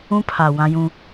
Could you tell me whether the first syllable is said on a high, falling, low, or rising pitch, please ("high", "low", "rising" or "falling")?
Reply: high